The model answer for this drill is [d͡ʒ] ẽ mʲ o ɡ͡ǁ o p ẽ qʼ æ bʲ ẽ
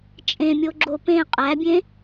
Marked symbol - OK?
no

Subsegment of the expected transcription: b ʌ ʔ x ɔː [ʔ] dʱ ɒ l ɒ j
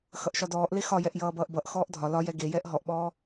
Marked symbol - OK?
yes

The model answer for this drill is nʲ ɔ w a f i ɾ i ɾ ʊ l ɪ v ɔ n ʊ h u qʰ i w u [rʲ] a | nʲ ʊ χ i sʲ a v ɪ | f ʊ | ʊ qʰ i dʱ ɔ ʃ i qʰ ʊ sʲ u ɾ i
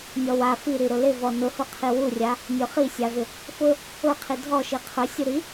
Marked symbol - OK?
yes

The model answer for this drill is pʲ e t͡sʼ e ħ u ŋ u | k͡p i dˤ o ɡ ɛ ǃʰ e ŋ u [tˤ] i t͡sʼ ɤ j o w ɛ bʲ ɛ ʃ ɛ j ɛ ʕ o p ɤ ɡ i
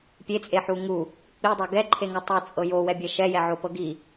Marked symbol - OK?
yes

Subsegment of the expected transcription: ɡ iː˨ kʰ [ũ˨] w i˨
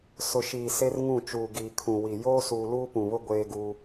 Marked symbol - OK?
yes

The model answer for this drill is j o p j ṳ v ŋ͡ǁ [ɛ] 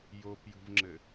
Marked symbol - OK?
no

